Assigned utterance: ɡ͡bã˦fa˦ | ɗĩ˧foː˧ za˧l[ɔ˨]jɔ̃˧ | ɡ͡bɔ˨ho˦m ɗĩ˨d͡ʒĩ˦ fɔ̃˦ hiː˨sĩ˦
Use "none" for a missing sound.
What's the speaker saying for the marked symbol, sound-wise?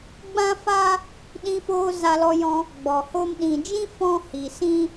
ɔ˧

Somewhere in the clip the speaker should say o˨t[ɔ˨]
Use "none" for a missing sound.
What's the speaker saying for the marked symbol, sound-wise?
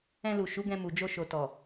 ɔ˨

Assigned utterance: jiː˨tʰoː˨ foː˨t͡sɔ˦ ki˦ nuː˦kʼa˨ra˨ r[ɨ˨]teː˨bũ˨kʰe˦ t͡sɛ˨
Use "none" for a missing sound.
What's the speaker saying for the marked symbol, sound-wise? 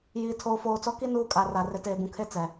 ɪ˨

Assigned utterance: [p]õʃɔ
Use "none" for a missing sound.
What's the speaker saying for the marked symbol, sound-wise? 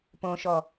p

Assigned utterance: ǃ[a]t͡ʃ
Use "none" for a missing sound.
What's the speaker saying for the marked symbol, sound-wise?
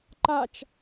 a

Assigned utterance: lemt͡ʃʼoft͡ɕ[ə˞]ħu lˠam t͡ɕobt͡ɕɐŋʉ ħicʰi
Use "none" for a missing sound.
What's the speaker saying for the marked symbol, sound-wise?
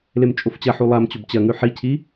ɐ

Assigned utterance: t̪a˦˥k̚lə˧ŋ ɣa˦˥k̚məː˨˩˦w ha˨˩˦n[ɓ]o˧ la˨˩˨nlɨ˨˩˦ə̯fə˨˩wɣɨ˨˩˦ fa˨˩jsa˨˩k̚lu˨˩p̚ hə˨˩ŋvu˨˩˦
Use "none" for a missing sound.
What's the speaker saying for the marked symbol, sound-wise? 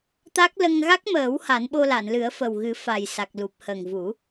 ɓ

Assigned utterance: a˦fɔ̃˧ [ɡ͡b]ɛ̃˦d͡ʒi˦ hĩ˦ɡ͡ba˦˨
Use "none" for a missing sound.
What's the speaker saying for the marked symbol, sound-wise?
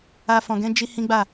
ɡ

